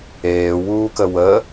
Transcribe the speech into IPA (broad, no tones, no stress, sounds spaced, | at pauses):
eː w uː k ə w ə